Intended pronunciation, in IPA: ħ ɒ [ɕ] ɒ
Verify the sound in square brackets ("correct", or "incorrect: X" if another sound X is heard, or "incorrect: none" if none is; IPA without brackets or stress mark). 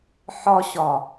correct